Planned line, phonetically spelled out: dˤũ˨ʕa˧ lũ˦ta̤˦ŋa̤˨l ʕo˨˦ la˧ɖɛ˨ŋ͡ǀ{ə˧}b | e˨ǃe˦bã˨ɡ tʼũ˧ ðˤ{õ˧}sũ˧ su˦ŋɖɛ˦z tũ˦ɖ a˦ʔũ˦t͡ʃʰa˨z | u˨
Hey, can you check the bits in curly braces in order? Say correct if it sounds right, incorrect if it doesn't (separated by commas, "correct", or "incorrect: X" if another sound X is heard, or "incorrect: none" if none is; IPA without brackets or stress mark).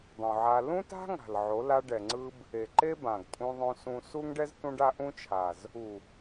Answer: incorrect: ɯ˧, correct